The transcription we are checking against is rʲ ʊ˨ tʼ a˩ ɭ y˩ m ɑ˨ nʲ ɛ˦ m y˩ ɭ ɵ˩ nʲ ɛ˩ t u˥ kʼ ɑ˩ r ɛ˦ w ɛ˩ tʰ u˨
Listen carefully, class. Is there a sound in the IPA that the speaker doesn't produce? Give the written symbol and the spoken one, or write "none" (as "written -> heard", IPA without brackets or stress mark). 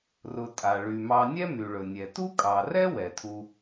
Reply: rʲ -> r